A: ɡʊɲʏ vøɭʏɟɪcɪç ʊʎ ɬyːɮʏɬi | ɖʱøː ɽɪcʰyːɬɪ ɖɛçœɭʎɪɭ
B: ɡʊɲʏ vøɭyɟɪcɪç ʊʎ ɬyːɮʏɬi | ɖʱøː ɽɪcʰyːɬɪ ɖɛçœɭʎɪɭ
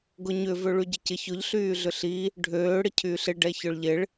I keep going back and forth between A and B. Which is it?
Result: B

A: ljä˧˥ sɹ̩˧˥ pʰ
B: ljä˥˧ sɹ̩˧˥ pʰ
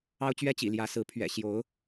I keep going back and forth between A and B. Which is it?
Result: A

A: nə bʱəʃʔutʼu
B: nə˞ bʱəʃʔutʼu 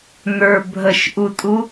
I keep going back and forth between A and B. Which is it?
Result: B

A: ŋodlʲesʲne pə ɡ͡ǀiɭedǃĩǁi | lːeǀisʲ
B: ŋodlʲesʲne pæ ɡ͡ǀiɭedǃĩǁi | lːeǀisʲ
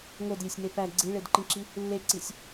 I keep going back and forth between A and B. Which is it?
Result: B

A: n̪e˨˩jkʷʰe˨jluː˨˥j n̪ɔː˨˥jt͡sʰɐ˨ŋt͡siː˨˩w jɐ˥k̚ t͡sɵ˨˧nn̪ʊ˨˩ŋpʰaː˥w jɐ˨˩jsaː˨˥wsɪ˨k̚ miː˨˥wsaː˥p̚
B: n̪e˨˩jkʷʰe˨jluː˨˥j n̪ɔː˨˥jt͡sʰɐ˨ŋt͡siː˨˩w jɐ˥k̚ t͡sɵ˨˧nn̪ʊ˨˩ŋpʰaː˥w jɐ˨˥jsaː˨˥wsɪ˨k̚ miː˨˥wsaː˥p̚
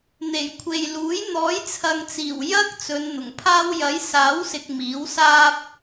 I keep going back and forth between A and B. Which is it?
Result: B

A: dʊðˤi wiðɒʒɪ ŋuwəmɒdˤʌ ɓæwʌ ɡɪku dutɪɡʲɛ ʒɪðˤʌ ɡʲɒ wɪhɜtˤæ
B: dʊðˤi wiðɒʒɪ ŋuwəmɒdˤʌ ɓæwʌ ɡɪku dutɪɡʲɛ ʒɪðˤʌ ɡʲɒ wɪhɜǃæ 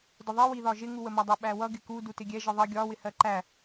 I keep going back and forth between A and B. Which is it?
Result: B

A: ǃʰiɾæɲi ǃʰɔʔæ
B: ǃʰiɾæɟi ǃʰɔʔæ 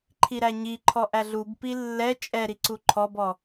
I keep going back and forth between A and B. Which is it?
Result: A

